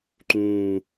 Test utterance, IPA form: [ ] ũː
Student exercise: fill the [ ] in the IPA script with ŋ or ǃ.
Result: ǃ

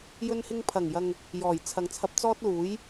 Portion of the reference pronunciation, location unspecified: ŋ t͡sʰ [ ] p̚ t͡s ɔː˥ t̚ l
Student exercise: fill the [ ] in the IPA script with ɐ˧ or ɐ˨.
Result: ɐ˧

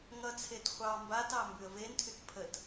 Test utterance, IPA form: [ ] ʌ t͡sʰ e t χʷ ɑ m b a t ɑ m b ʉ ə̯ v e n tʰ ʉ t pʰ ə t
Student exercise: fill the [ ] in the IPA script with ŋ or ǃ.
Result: ŋ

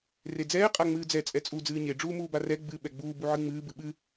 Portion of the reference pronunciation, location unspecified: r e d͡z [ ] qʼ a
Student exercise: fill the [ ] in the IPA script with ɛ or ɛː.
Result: ɛː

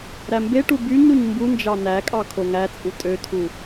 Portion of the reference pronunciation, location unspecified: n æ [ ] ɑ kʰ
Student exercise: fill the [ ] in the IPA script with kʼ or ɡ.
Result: kʼ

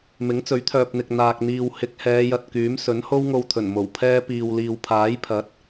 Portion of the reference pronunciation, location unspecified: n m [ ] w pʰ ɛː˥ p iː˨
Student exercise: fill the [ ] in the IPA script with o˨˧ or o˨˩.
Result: o˨˩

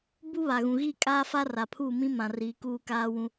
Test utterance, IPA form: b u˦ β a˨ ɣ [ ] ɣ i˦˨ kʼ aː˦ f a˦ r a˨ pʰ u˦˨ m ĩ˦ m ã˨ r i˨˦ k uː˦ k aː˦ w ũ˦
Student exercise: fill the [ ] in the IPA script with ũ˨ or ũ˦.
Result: ũ˨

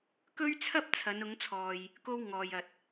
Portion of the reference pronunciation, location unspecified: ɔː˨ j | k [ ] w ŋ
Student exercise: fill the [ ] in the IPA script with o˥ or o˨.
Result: o˥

